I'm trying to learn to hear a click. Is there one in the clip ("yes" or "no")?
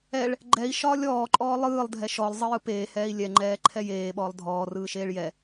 yes